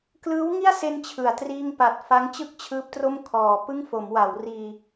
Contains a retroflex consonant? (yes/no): no